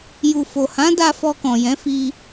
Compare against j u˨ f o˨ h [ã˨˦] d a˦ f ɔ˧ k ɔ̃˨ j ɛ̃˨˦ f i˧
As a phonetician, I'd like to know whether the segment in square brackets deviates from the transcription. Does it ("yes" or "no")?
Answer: no